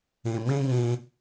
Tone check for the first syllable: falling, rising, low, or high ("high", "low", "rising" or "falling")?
low